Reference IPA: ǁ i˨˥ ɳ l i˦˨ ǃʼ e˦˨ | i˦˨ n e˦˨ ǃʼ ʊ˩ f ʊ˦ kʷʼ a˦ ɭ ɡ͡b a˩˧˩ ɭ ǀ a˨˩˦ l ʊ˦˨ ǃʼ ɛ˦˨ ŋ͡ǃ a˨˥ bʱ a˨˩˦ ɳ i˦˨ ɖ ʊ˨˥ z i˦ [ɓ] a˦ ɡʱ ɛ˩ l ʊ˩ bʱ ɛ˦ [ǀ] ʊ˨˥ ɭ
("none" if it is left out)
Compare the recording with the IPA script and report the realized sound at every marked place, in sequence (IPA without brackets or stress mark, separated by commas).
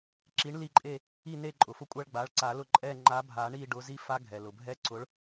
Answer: f, ǀ